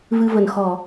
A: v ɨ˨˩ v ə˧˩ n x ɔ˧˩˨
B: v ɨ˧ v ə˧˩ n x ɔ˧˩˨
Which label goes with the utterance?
B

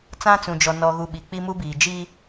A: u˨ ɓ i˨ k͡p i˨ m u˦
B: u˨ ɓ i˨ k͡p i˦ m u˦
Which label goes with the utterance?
B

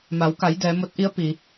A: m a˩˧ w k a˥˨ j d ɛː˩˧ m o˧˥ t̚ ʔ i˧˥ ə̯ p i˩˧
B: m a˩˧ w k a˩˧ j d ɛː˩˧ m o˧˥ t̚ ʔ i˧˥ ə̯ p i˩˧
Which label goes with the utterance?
B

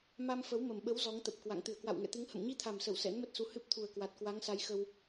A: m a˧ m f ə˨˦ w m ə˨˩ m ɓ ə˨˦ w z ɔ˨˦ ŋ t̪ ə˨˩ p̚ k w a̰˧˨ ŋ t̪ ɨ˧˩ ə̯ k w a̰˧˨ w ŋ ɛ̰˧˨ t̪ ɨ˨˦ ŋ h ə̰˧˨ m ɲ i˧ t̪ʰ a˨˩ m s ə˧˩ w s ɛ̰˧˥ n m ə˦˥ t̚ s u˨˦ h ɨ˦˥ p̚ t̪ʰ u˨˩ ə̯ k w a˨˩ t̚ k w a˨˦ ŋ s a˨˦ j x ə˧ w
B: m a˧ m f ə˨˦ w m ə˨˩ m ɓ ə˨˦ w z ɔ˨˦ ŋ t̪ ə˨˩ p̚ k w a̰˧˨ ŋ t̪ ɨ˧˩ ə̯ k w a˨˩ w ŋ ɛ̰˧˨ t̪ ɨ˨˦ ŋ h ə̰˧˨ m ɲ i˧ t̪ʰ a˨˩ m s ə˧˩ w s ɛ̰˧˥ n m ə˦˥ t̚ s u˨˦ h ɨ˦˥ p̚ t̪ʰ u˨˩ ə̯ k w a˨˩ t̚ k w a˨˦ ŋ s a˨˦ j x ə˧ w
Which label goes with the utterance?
A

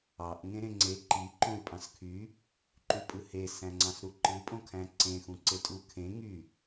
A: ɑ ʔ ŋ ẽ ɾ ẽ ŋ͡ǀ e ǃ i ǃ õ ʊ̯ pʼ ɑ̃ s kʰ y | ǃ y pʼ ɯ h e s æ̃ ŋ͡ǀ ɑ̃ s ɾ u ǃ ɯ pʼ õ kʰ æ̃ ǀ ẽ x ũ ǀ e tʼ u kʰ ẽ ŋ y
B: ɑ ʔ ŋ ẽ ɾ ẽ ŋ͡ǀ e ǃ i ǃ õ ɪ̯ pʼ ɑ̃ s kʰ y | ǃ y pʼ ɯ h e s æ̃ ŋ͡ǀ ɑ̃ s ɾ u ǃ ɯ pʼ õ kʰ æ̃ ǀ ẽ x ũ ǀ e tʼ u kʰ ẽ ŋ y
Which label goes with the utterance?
B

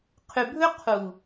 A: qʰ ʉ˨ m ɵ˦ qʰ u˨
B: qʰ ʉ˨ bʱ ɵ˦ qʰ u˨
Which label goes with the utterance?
B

